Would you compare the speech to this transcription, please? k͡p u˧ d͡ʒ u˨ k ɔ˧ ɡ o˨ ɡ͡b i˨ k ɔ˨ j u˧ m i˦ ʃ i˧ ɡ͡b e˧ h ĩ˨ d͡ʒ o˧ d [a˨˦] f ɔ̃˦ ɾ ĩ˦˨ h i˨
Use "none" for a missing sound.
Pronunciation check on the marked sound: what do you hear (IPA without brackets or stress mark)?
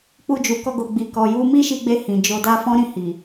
a˦